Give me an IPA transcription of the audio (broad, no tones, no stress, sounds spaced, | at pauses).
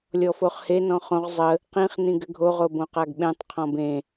lʲ ɔ f o χ h e n ɔ̃ χ õ ʁ zˤ ə | q ĩ χ n ĩ ɡ ɘ ɡʱ o ʁ o b õ q a ɡ ɓ ẽ tˤ qʰ ɔ̃ b ẽ